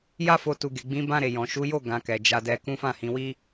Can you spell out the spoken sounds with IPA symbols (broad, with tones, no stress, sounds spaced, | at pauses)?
j a˦ f o˧ t u˨ ɡ e˨ ɡ͡b ĩ˨˦ b ã˧ ɾ e˨ j ɔ̃˨ ʃ u˨˦ j o˦˨ ɡ ã˨ k ɛ˨ d͡ʒ a˧ d ɛ˧ k ũ˦ f ã˦˨ h ĩ˧ w i˦